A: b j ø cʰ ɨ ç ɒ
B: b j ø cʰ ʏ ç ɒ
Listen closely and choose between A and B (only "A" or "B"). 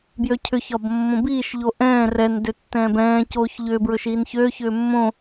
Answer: B